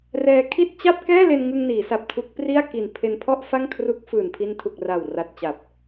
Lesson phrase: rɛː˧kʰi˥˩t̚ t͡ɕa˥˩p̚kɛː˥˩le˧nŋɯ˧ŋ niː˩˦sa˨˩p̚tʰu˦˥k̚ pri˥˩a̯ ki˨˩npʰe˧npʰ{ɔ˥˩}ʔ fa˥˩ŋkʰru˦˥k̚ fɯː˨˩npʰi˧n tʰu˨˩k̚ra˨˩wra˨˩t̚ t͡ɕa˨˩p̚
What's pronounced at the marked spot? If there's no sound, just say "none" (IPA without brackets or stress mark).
ɔ˥˩